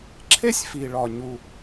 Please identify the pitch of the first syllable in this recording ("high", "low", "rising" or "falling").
high